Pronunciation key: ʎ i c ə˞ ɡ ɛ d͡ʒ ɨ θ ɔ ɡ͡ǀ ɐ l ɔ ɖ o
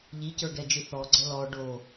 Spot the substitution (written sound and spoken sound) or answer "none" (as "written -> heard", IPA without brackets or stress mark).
none